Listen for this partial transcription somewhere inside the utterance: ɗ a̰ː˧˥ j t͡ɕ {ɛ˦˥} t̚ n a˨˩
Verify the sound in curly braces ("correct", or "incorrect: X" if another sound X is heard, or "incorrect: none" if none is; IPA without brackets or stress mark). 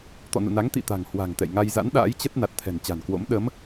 incorrect: ə˦˥